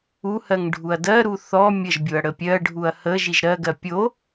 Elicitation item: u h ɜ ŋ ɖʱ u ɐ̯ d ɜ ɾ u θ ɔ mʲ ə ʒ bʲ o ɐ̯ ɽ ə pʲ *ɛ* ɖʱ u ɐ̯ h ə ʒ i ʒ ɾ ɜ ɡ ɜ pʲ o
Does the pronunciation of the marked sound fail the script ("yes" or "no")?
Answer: yes